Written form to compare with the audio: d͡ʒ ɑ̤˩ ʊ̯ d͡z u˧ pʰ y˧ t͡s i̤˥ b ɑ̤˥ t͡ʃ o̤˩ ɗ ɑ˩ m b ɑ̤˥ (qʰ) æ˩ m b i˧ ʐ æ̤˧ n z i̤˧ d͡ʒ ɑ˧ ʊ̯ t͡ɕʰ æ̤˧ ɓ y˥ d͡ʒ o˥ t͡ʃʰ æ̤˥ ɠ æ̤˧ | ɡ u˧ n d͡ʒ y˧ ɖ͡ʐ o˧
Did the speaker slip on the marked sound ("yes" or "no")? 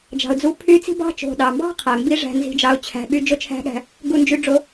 no